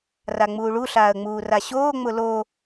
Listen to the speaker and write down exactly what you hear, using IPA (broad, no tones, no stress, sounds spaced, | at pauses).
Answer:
r a ŋ͡m uː ɭ u ɬ aː ə̯ ŋ͡m uː r a ɕ oː ŋ͡m ʊ l o